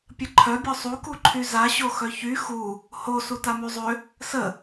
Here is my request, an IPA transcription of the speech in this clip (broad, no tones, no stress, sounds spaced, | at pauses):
pʲ ə ǃʰ œ bʲ ɔ sˤ u k u ǃʰ y z a ɕ o x œ ç y x u | h o s u t a m y zˤ ø | s ə